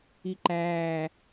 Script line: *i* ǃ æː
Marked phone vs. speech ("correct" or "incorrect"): correct